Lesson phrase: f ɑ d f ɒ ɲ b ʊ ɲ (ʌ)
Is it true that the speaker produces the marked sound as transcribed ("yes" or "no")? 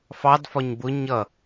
yes